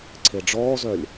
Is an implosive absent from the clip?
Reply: yes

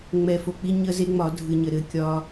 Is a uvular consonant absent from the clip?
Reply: yes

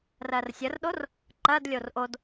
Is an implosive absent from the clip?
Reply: no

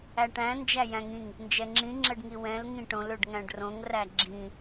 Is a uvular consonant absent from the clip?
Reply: yes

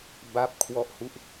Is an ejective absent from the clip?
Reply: yes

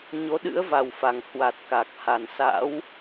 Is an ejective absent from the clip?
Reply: yes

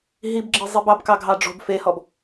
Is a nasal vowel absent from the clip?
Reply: yes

